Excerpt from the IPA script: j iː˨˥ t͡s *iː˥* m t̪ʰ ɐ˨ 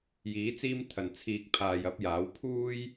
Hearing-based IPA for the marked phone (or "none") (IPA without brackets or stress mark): iː˥